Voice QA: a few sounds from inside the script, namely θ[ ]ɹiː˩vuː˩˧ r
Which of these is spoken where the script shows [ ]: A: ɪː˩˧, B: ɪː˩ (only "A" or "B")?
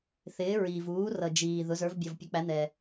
A